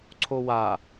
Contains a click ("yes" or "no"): yes